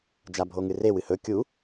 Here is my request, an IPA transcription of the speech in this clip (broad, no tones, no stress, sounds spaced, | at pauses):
d͡ʒ a bʱ o ŋ ɨ r e w ɨ h ɵ kʲ u